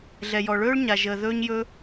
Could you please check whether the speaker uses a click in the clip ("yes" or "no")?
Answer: no